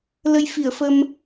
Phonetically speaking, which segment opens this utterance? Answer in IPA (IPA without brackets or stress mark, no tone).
l